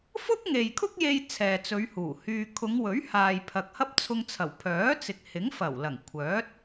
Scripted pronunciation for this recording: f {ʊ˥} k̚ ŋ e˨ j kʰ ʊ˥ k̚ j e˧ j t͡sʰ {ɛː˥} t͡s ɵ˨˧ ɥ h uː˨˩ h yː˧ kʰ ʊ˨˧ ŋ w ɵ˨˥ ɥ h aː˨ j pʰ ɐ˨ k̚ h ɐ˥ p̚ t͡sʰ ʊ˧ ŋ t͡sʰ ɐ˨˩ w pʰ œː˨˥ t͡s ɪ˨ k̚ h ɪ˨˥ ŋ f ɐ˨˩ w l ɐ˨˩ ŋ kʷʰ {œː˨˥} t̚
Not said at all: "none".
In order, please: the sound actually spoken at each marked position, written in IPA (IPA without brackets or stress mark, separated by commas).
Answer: ʊ˥, ɛː˨, œː˨˥